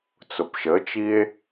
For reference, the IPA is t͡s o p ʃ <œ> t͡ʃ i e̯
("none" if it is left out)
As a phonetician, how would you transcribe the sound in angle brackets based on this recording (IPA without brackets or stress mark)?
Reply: ə